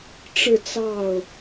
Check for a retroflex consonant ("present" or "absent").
present